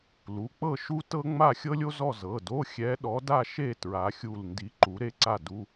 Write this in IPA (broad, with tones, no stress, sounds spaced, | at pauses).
l u˩˧˩ k͡p ɤ˥˧ ʃ u˥ t ɤ˥ ŋ͡m a˥˧ xʲ ɤ˥ lʲ o˥ z ɔ˥˧ z ɤ˩˧˩ d o˧˥˧ xʲ ɛ˧˥ ɗ ɔ˧˥ d a˥˧ ʃ e˥˧ t ɹ a˧˥ xʲ u˥˧ l n d i˧˥ ǃ u˧˥ ɾ e˥ ǀ a˥˧ d u˧˥˧